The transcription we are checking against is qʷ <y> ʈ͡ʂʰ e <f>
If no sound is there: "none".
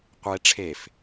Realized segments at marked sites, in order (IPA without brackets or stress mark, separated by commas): e, f